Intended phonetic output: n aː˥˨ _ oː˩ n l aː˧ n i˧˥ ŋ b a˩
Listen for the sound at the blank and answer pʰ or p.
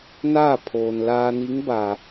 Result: pʰ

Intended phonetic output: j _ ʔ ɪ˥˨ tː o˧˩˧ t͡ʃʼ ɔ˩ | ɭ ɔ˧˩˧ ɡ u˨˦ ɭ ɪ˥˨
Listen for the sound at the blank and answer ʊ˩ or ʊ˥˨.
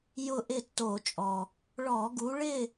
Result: ʊ˥˨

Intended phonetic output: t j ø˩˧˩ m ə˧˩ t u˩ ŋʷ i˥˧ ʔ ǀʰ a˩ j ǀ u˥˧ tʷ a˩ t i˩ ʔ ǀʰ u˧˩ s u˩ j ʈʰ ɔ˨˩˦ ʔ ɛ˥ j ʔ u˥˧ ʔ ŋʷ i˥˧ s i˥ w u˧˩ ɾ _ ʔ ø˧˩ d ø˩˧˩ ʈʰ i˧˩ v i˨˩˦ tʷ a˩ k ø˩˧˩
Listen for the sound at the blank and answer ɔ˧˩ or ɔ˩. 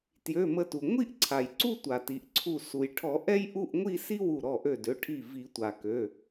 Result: ɔ˧˩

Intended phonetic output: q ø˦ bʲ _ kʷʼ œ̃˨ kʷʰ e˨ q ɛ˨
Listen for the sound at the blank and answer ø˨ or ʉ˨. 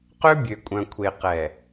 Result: ø˨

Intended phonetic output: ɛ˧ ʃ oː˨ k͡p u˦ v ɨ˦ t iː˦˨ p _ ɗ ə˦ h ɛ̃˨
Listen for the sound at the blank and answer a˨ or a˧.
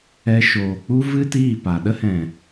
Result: a˨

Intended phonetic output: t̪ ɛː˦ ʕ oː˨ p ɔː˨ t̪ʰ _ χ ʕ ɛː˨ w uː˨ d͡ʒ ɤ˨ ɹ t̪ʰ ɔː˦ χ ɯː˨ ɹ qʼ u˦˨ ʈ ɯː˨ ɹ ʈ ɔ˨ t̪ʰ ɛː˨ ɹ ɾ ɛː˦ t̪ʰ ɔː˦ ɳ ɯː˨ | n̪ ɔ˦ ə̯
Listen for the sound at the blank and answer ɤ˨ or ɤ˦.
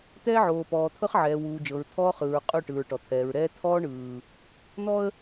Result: ɤ˦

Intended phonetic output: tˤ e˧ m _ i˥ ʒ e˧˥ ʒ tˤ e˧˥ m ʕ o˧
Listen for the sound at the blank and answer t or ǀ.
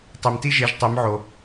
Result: t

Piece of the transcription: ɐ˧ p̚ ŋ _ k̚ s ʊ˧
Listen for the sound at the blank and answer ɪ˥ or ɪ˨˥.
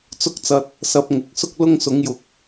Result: ɪ˨˥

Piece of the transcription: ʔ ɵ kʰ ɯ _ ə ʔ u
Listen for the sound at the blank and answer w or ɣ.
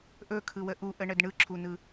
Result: w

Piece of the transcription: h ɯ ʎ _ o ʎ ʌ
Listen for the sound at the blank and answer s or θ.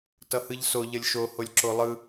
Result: s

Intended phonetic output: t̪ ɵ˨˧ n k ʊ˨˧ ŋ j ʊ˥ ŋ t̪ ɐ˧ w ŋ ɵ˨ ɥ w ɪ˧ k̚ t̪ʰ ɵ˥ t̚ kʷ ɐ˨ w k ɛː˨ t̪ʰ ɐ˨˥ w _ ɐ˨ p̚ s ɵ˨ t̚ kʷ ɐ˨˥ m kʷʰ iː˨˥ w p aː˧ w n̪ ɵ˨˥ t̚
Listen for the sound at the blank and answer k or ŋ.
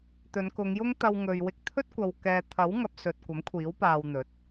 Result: ŋ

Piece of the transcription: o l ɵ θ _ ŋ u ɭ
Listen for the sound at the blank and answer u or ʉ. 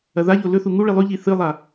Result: u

